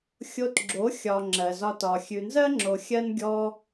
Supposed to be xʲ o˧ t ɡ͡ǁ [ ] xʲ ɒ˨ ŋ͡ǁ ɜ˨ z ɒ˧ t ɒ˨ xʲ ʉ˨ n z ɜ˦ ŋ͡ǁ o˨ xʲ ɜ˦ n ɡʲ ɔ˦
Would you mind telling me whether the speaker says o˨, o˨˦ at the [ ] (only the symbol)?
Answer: o˨˦